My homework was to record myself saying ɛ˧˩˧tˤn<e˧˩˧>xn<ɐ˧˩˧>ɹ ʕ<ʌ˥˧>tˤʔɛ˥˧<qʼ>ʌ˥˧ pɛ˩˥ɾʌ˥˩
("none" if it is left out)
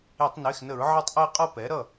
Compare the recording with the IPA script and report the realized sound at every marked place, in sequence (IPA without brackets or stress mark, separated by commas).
e˩˧˩, ə˧˩˧, ʌ˥˩, qʼ